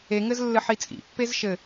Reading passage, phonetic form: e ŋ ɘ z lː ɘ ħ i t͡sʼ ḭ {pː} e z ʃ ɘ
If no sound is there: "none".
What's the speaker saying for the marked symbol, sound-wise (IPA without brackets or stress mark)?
pː